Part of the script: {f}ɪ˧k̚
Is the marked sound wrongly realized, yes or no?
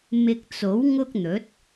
yes